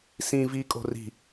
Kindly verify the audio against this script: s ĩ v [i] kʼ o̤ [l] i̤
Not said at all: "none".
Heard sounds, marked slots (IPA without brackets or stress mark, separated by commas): i, r